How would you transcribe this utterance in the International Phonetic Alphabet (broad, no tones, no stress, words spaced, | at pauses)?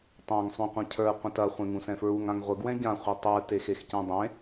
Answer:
tˤãŋ sˤũqʷɐ̃cʰə˞ qʷɐ̃tɐ χʷẽŋũsɛ̃fɹuŋ ãŋʁʷə ɡwɛ̃ɟã χʷitˤə˞ texexcɛ̃dˤẽ